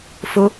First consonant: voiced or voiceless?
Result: voiceless